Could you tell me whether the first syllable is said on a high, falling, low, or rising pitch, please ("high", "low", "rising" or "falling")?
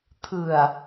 low